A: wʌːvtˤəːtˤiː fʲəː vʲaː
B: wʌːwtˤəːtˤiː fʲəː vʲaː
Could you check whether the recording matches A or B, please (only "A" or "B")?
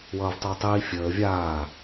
A